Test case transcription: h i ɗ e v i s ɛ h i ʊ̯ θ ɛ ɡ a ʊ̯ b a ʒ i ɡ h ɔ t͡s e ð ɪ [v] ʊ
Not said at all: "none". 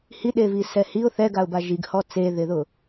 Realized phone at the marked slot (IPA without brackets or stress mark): ð